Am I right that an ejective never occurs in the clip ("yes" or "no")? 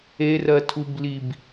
yes